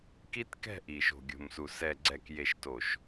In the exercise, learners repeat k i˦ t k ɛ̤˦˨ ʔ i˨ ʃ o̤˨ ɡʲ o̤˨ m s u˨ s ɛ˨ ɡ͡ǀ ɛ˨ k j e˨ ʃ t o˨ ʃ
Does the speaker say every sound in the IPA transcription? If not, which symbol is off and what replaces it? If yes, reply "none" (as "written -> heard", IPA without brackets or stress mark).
none